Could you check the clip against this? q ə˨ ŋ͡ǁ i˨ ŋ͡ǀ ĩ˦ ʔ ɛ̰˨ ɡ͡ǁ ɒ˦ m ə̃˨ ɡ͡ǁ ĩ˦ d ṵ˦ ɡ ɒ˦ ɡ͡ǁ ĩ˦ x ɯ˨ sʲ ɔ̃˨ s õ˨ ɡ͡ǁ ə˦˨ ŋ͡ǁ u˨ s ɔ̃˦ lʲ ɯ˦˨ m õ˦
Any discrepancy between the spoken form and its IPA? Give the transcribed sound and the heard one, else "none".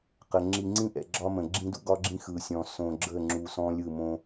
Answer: none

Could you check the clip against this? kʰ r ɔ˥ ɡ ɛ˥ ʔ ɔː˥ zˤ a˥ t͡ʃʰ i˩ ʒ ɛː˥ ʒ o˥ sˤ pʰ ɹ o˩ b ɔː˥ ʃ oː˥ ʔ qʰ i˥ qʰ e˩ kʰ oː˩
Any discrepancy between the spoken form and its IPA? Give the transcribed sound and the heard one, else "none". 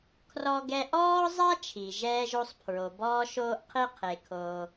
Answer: none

